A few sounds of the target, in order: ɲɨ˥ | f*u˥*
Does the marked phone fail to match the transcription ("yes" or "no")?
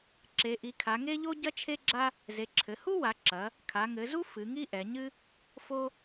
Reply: yes